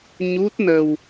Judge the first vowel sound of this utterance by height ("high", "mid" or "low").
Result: high